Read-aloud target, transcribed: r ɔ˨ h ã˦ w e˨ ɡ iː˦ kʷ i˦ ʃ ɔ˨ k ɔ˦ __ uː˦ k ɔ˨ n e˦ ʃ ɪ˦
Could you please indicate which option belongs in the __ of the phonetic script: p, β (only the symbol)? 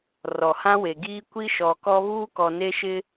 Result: β